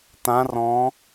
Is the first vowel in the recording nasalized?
yes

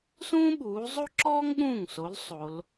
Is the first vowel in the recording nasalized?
yes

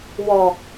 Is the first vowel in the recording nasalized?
no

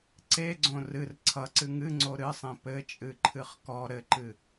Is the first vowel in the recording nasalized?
no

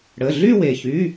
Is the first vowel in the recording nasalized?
no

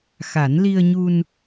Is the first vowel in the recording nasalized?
no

